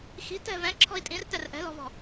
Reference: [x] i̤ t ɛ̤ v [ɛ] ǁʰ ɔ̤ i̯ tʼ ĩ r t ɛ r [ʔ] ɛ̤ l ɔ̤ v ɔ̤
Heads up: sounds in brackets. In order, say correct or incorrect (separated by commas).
correct, incorrect, correct